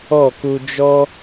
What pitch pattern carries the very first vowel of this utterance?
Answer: falling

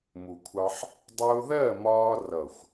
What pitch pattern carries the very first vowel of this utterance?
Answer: low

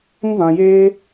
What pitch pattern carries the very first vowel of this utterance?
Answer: high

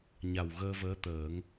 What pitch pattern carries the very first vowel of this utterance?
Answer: low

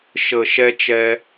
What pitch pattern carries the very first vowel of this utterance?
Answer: low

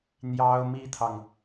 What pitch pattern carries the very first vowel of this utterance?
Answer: high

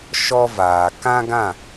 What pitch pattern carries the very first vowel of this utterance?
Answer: high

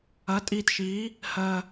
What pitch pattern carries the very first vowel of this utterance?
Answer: rising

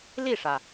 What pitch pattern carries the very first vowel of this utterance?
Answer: falling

